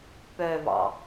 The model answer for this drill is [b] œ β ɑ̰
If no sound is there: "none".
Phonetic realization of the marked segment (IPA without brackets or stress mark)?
p